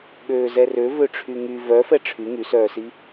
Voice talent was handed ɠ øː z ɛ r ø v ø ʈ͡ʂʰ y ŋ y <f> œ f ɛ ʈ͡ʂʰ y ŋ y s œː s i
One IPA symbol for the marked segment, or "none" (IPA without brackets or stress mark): v